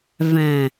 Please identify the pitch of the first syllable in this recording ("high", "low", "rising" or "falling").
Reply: low